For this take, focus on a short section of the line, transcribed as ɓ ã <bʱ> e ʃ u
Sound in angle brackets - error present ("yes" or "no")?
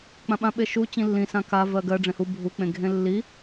yes